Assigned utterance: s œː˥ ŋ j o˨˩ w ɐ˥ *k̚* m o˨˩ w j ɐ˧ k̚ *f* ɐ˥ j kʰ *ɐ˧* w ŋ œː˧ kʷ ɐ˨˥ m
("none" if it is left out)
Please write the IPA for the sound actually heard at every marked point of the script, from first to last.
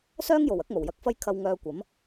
k̚, f, ɐ˧

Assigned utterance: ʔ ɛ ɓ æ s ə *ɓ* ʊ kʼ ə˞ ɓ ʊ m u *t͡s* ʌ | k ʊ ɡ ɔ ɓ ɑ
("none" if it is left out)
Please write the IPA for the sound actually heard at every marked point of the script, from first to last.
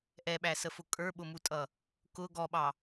f, tʼ

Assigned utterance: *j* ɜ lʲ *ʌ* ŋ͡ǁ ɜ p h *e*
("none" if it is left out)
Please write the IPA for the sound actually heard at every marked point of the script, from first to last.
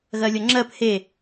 ɣ, ʌ, e

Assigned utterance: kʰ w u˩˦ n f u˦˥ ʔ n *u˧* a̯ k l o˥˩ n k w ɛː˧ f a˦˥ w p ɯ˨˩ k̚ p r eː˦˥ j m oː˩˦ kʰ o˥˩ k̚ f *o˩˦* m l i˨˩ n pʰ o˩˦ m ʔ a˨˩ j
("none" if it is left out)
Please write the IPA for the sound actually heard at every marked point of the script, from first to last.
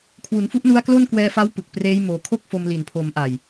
u˦˥, o˧

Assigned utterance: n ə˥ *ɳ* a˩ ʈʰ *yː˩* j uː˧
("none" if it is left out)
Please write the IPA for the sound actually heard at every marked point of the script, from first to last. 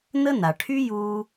n, yː˥

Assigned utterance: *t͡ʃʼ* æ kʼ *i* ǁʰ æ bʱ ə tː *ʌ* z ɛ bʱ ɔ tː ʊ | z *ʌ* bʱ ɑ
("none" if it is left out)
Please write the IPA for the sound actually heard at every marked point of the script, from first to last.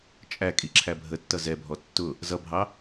t͡ʃʼ, i, ʌ, ʌ

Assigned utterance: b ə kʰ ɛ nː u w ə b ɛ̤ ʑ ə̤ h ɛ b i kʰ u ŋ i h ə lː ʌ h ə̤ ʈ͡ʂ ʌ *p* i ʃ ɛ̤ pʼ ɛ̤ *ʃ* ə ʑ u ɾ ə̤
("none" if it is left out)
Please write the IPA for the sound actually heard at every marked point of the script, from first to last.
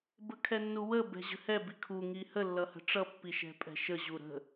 pː, ʃ

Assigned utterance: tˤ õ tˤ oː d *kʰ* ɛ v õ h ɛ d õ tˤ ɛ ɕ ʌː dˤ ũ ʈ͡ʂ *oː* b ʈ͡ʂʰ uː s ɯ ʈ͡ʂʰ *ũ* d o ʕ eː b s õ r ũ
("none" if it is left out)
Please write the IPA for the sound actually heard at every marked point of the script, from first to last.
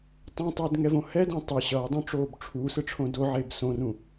ŋ, oː, õ

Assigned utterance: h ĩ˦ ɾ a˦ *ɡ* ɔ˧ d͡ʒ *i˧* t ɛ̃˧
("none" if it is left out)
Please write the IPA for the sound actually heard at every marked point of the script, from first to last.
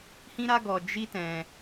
ɡ, i˦

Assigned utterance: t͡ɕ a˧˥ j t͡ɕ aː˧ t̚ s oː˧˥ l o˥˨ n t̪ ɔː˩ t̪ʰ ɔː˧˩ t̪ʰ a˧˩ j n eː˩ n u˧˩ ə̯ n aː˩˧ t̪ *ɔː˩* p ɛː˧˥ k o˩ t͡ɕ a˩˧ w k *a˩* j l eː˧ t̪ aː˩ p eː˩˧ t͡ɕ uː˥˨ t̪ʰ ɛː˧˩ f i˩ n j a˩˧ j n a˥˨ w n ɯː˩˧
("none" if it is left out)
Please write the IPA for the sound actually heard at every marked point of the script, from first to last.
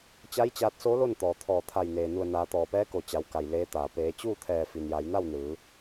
ɔː˩, a˩

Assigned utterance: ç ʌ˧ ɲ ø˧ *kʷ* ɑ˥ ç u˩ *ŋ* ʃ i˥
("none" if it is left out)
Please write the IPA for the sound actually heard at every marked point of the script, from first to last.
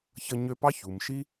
p, m

